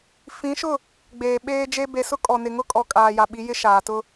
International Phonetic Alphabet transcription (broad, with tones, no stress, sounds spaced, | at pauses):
f ĩ˨˦ ʃ ʊ˦˨ | ɡ͡b eː˨ ɓ eː˦ d͡ʒ e˦ b e˨ s ʊ˦ kʼ ɔ˨ n ɪ˨ ŋ ʊ˦ kʼ ɔ˨ kʼ aː˨ j a˨ ɓ i˨˦ j ɪ˦ ʃ aː˨ t ʊ˦